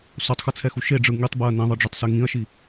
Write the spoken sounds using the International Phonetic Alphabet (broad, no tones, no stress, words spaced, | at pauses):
sotˤxɯt͡sʰɛxu ʃeɖ͡ʐɯ ŋitˤbeɐ̯ nĩðˤɯɖ͡ʐetˤse ŋĩɐ̯ʃi